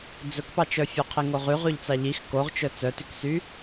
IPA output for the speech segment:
d͡zɵkpɑt͡ʃœ fʲœqʰiŋoʁy ʁʉʎt͡sɑʎix koʁt͡ʃœ t͡sœtyksy

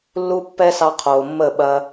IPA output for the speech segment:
lːu˦ pːɛ˦sɑ˧qʰoː˨ mːə˦˨ɓɐ˧

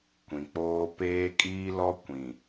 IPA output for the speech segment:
kʷĩ˨k͡poː˦ peː˦kʼiː˦lɔ˦ kʷĩ˨

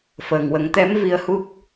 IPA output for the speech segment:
fəː˨˩ŋwə˨˩˦ŋt̪ɛ˧˥m vi˧ə̯hu˦˥k̚

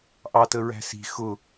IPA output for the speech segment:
ʔɑtəɹæ̤ si̤ xʊ

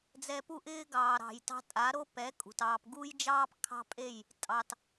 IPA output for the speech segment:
d͡zɛ˧pu˦ʔɪː˦ ɡɑː˨ɾɑ̤˨j tɑ̤˧tʼa˨˦ɾo˦ pɛ˨˦ kʼṳ˨tɑː˧p ɡu˦jd͡ʒɑː˦p kʰɑ̤˦pʼe˦˨j | tʼɑ˧t

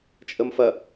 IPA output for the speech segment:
t͡ʃʼəmfɐ

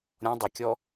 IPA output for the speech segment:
ɾʲɔ̃ dˤəkʲɔ

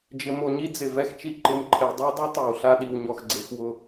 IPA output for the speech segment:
d͡ʒɪ˨mo˨ɲi˦ d͡zɪ˨vɛ˦xt͡ʃi˦ ǃɪ˨m ǃʰe˨dˤe˦dˤu˦ tˤɛ˨wɬa˦ɗi˨w ɲɔ˨xɡ͡ǀe˨xwʊ˦˨

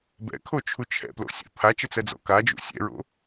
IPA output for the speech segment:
bɛ̰kʰot͡ʃʰu t͡ʃʰɛ̰plo̰sʲa̰ pʰat͡ʃət͡sɛd͡zɔ̰ kad͡ʒṵ sʲɛ̰ɹo̰

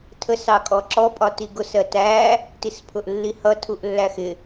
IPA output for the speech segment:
tʰəs ɑkʼɔǁɔ pʼɒtiɡʊs ɜtæ | tispʰʊʔlːihʌ tʰuʔlːæxɪ

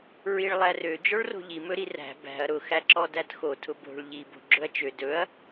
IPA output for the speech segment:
ɹiɭlˠærø d͡ʒɔɭro̤ʎi mɵɾiræ̤ bæ̤ɐ̯ ɾʊ xæǁɔdætxo tʰʊbo̤ɭ ʎi bo̤ɡ͡ǁɵɐ̯t͡ʃø dɵɐ̯

